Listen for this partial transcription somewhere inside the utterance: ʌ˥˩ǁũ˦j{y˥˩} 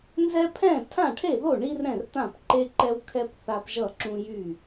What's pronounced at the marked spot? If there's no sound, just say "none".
y˥˩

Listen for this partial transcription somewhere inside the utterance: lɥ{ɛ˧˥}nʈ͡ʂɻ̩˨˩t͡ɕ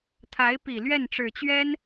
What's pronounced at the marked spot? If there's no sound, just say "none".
ɛ˥˩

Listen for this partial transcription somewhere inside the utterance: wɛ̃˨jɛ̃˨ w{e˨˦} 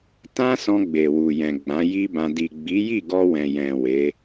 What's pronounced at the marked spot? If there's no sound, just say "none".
e˨˦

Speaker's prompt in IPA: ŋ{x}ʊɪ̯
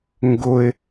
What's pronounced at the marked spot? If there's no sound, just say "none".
ɡ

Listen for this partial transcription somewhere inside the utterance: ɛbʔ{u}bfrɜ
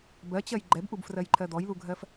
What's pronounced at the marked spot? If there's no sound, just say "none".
u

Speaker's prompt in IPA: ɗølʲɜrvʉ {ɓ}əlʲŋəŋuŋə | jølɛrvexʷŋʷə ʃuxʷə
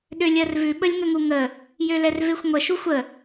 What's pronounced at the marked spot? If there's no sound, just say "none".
ɓ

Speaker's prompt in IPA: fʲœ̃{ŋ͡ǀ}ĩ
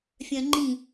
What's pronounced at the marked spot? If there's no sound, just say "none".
ŋ͡ǃ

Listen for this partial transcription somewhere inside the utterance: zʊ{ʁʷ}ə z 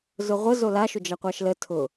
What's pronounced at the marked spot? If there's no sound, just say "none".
ʁʷ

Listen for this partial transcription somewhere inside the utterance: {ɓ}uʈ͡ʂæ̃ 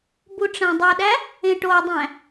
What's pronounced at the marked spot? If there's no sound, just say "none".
b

